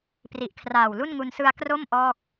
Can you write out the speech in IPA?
p r i˨˩ ʔ kʰ r aː˨˩ w l u˥˩ n ŋ u˧ n s ɯ˧ a̯ k r o˥˩ m ʔ ɔː˥˩ k̚

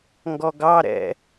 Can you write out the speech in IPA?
ŋ ɡ ɔ ɡ ɑ ɾ ɛ̰

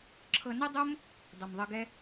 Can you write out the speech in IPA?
ǁʰ ɤ˧ n ɛ˦ dˤ o˦ m | dˤ ɤ˨ m ðˤ ɤ˧ ɡ ɛ˦

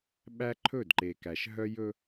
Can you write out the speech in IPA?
ɓ æ˦ ǃʰ ɵ˦˨ d ǃ e˨ k æ˨ ʃ ɦ œ˦ j ɵ˦

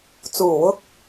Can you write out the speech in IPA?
t͡s uː˨˩ w ʊ˧ k̚

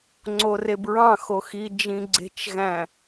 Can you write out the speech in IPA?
ŋ͡ǀ o r e b ɹ ɑ̃ x o x i d͡ʒ ĩ ɡ͡ǀ e̤ t͡ʃ ɣ æ̃

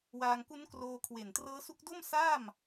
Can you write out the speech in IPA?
w aː˧ ŋ k u˦˥ n k r oː˧ kʰ w e˨˩ n t r ɤː˦˥ s u˦˥ k̚ d o˥˩ m s aː˥˩ m

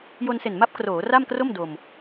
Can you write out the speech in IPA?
j o˧ n s e˨˩ n m a˦˥ p̚ k r oː˩˦ r a˥˩ m k r o˥˩ m d o˧ m

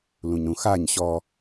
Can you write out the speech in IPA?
l ũ ɲ ɾ ũ x a ɲ ɕ ɔ

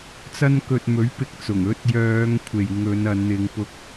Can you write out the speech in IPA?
t͡s ɐ˧ n k ɵ˨ t̚ m ɵ˨˥ ɥ p ɪ˨ k̚ t͡s ʊ˨˩ ŋ ɵ˧ t̚ j œː˨˧ ŋ kʷʰ e˨ j ŋ ɵ˨˧ n ɐ˨˧ n n̪ ɪ˨˧ ŋ p ʊ˧ k̚

